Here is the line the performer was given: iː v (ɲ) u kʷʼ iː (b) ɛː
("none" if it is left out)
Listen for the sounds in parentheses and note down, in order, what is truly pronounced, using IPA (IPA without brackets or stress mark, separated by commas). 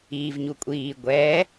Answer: ɲ, ɡʷ